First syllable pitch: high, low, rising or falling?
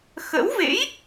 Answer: rising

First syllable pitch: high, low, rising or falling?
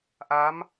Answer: rising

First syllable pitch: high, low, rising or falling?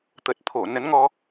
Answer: low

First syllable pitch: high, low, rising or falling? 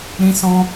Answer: high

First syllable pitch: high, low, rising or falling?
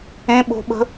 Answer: high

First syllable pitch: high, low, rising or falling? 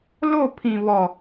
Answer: falling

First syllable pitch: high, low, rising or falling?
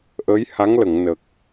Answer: rising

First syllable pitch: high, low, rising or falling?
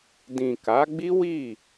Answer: low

